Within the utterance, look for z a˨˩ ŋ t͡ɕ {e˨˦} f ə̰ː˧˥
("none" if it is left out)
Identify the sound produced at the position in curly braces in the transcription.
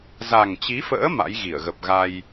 i˨˦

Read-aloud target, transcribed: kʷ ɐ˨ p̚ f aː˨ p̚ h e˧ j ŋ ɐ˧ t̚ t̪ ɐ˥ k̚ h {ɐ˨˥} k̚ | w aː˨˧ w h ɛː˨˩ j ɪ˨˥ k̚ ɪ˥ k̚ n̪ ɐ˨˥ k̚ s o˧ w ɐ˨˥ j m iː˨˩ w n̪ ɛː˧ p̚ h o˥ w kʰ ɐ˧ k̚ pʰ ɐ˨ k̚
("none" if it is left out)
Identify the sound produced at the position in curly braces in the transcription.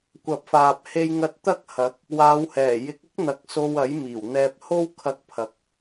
ɐ˨˥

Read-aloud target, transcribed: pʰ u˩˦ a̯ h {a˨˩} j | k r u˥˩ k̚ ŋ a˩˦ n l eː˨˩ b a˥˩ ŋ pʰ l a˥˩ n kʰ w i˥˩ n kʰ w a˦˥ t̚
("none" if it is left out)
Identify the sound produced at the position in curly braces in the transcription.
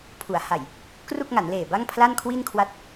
a˨˩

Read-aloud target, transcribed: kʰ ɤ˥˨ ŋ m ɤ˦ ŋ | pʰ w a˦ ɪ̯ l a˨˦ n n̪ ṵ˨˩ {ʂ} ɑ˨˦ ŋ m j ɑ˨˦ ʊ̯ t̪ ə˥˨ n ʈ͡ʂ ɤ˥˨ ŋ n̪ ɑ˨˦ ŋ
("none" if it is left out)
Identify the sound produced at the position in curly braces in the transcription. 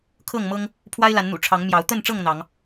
ʈ͡ʂʰ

